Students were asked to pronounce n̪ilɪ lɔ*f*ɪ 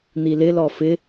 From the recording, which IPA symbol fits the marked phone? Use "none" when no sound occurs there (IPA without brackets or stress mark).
f